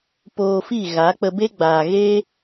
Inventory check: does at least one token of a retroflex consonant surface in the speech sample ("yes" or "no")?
no